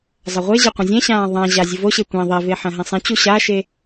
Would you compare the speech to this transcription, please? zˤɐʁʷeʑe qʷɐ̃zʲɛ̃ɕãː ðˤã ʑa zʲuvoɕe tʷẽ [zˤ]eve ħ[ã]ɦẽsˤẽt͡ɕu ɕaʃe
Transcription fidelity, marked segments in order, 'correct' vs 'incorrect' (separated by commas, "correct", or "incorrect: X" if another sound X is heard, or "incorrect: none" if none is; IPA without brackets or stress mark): incorrect: ðˤ, incorrect: ɐ̃